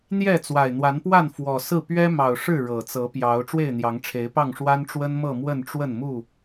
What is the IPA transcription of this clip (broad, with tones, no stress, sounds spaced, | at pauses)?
n̪ j ɛ˥˨ t͡s w a˨˩ ɪ̯ n̪ w a˨˦ n p w a˥˨ n f w ɔ˨˩ s ɹ̩˥˨ p ɥ ɛ˦ m ɑ˨˩ ʊ̯ ʂ ɻ̩˥˨ ɻ ɤ˨˩ t͡s ɤ˨˦ p j ɑ˨˦ ʊ̯ ʈ͡ʂ w e˥˨ ɪ̯ n̪ j ɑ˨˦ ŋ ʈ͡ʂʰ e˨˦ ɪ̯ p ɑ˥˨ ŋ ʂ w a˦ n ʈ͡ʂ w ə˦ n m ɤ˥˨ m w ə˥˨ n ʈ͡ʂ w ə˥˨ n m u˥˨